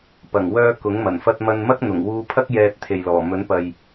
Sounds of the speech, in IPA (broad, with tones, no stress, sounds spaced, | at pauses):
p ɐ˨˩ ŋ w œː˧ k ʊ˨˥ ŋ m ɐ˨˩ n f ɐ˧ t̚ m ɐ˧ n m ɐ˥ k̚ n̪ ʊ˨˩ ŋ w uː˧ pʰ ɐ˥ k̚ j ɛː˨ t̚ t̪ʰ e˨ j l ɔː˨˩ m ɵ˨˥ n p ɐ˨ j